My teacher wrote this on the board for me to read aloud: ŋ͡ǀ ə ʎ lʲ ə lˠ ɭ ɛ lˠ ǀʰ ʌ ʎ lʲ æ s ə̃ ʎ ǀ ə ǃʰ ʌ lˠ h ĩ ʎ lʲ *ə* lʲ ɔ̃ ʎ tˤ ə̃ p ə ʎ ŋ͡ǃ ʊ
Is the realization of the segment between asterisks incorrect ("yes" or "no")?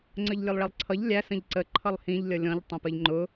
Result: yes